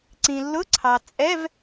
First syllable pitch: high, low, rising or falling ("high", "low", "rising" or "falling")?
low